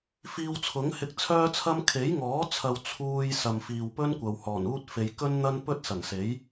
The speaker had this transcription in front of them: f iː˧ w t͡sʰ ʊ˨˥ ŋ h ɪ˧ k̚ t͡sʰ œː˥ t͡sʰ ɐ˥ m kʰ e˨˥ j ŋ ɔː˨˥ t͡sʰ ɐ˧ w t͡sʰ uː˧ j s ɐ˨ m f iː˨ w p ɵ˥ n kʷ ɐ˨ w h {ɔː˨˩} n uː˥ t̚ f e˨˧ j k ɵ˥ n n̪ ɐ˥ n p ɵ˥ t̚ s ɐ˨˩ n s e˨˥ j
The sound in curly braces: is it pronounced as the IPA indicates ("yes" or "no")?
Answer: yes